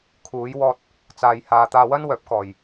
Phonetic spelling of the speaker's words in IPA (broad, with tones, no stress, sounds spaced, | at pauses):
kʰ uː˨˧ j w ɔː˧ t̚ | t͡s aː˨ j h aː˨ t̪ aː˧ w ɐ˥ n w œː˨˥ p̚ k ɔː˨ j